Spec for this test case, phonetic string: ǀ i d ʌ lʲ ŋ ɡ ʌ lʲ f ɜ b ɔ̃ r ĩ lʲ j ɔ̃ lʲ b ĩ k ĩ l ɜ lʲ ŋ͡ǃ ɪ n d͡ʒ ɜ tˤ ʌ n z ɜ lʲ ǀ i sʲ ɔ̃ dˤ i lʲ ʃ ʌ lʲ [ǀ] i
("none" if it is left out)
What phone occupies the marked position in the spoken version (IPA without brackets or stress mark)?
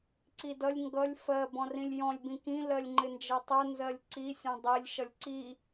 ǀ